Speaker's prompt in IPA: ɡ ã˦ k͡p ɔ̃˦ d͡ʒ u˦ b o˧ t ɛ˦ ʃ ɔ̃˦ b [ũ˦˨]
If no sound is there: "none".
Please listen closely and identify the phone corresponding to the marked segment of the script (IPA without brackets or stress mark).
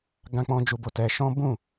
ũ˦˨